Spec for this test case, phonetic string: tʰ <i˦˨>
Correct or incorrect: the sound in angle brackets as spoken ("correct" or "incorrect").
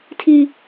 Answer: incorrect